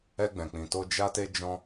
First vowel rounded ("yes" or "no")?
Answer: no